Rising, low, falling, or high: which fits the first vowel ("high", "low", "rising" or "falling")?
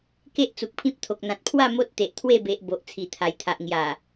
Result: high